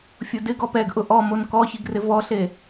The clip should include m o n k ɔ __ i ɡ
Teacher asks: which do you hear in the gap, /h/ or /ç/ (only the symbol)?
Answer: ç